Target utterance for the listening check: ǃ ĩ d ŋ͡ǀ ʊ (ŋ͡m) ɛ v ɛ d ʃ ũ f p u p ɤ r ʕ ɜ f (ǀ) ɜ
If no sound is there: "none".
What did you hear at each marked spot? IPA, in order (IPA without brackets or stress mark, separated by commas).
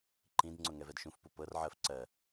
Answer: ŋ, ǀ